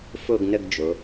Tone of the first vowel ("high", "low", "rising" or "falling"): falling